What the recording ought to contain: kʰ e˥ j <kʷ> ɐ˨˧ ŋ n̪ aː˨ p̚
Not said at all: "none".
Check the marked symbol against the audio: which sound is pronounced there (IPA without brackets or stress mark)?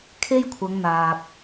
kʷʰ